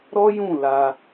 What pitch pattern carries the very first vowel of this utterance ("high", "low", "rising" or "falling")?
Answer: high